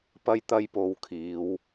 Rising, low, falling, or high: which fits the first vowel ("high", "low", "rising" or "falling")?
high